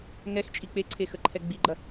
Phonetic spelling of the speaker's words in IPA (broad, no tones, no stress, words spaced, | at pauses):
ŋɛxt͡ʃʼi k͡peǀʰexəǃʰɛ ɡ͡biɡ͡ǃɐ